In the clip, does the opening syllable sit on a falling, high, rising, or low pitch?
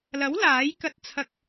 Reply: rising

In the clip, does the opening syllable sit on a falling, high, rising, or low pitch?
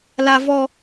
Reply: high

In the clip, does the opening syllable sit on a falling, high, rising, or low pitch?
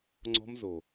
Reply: high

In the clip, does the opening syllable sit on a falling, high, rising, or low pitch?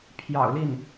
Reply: low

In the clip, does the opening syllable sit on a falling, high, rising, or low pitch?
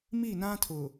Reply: falling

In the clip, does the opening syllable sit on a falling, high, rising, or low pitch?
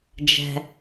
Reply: high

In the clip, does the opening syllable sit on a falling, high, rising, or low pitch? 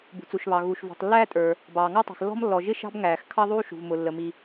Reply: low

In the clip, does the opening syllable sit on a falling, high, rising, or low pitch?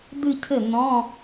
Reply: falling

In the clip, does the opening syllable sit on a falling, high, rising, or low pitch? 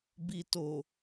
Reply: low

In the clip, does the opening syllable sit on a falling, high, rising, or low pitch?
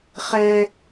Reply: high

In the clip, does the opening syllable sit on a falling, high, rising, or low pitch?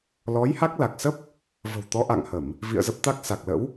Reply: rising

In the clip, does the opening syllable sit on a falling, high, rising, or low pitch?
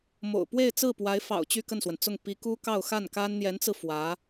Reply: low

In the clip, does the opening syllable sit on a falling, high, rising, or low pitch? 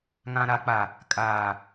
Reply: low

